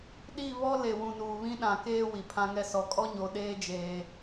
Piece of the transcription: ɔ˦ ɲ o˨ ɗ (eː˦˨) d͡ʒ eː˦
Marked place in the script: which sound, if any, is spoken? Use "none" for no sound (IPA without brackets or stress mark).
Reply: eː˦